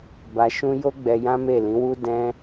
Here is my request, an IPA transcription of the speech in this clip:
ba˧ʃũ˦ jo˦ɡ͡bɛ˧ jã˦me˦˨lĩ˨˦wu˦ dɛ̃˦

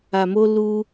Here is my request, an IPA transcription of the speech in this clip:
a˧mo˦ lu˦

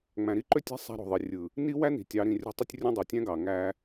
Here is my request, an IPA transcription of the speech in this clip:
ŋ͡mæ̃˨ɾi˦ǃø˦tʲæ̤˦ sˤæ̤˦ɾo̤˨ðˤi˨ rʲɯ˨ | ni˦wæ˦ni̤˨ tʲɑ˨˦ɾĩ˨rʲo̤˦tˤy˦tʲ rʲõ˦dˤo˨tʲæ̃˦ɡɑ˨ ŋæ˦

